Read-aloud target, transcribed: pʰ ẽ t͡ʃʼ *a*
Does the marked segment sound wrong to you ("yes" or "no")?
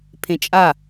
no